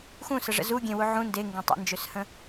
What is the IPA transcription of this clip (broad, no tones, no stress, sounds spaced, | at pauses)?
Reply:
x ũ s ə ʐ ə̰ z u ɡʲ ẽ w u ʕ ũ n d e ŋ ɡ ẽ tˤ ḛ n d͡ʒ ø s h ə̃